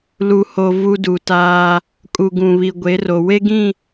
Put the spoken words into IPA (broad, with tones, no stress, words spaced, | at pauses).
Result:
lu˨ ho˨ vu˦du˨taː˦ | kʼu˨ɡũ˨ βi˨ɡʷe˨˦ro˨ we˦ɡĩ˦˨